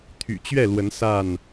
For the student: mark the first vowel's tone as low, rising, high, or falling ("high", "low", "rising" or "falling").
low